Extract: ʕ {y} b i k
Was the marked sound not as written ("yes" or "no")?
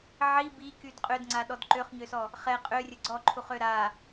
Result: yes